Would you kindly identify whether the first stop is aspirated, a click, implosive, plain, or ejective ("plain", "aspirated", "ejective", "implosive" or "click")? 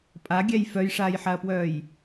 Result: ejective